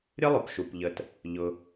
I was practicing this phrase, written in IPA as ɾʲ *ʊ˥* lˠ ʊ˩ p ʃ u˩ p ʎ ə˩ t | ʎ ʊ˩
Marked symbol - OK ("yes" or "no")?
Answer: no